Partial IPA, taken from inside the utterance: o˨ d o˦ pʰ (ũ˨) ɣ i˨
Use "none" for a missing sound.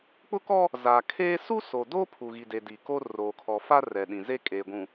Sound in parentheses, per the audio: u˨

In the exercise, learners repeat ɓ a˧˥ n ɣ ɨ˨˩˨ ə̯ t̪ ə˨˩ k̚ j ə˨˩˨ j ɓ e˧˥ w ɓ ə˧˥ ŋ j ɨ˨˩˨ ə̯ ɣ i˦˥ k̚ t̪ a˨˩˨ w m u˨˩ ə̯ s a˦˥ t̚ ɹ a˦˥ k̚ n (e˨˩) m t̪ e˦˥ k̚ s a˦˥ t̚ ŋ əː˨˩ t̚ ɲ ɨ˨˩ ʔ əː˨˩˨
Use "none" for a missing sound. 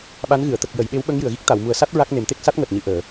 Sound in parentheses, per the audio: e˨˩˦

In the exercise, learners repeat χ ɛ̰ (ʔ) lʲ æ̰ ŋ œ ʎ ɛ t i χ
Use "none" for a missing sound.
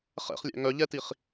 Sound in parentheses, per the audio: χ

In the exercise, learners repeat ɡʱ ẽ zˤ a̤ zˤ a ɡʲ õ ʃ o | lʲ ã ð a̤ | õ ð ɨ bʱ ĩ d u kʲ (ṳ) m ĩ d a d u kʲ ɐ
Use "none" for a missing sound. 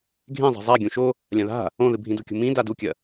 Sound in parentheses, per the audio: ṳ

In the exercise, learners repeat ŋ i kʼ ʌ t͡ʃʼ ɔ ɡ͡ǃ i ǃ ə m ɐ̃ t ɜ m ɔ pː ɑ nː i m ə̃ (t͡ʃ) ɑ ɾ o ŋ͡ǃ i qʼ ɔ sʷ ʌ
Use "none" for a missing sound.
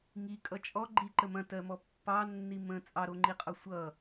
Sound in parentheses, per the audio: t͡sʼ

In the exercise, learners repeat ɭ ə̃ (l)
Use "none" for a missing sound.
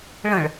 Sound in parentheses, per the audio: ɭ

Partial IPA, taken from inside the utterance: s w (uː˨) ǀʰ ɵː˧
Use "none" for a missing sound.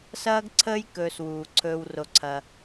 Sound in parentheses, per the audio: uː˨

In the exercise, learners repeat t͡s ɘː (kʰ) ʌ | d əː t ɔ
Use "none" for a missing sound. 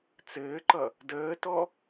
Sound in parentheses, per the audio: ǃ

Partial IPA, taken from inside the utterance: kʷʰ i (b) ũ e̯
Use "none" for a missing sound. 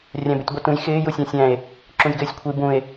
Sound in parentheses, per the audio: b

